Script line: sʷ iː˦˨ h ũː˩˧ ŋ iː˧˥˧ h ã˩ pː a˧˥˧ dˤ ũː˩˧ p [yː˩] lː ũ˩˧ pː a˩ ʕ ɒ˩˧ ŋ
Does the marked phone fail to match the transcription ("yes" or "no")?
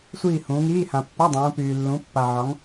no